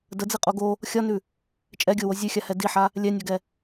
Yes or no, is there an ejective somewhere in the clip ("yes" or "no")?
yes